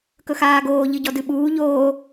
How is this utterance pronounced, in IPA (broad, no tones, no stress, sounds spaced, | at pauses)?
k ɵ x aː ɡ oː ʎ ɨ ɟ ɔ d ɨ ɓ uː ʎ oː